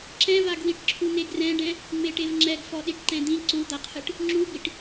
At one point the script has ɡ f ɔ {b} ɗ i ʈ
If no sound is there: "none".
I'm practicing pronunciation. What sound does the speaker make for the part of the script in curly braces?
none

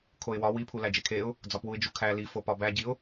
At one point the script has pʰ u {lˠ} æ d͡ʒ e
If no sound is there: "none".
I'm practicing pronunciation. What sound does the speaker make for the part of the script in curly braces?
l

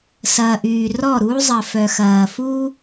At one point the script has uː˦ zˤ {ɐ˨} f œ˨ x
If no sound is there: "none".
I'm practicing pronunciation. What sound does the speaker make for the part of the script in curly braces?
ɐ˨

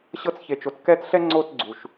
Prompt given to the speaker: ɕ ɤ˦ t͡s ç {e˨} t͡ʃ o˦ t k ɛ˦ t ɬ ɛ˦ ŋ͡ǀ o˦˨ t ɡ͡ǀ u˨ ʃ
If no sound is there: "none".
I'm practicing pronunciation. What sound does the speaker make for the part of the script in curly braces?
e˨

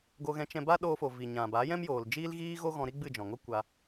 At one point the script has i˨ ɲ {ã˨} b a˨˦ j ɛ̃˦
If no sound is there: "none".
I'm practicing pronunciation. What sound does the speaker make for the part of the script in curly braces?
ã˨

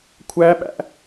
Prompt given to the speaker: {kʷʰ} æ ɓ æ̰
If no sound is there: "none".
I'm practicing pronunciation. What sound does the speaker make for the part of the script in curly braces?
kʷʰ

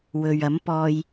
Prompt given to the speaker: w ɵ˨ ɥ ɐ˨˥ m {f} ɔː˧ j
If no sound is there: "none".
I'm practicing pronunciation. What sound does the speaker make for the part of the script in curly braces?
p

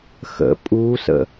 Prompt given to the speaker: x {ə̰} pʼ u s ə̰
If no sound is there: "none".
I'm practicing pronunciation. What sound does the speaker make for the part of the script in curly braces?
ə̰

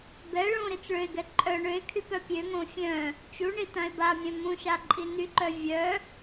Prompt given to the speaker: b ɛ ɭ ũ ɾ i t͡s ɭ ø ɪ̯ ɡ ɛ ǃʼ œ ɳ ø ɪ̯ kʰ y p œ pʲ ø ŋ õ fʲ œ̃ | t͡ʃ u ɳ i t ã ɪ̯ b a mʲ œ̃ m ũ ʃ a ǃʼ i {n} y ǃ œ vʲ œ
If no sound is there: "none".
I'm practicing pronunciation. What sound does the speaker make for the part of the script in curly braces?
n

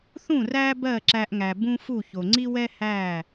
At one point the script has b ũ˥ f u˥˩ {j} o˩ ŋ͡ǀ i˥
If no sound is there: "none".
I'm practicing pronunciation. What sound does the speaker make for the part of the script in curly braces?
ç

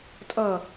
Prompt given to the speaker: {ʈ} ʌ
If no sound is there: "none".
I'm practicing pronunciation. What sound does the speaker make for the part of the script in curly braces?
tʼ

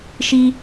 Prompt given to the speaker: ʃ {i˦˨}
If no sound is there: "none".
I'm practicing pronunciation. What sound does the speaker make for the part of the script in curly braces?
i˦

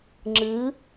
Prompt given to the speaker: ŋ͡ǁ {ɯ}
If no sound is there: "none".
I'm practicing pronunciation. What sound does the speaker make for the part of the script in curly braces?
ɯ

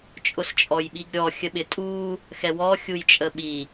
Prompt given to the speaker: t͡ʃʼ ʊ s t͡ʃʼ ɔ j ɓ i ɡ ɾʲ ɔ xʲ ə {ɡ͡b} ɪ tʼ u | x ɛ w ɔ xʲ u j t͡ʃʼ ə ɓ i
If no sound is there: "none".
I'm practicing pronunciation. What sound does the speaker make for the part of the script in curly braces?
ɓ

